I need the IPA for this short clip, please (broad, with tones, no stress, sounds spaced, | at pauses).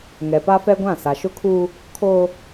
ŋ ɛ˨ p a˦ f ɛ˦ ɡʷ ã˦˨ s a˨ ʃ ʊ˦ kʰ uː˦ | kʰ oː˦